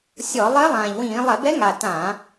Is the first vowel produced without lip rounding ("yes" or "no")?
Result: no